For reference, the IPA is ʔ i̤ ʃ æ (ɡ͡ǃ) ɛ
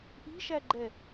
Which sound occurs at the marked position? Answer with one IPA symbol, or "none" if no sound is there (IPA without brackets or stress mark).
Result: ɡ͡ǃ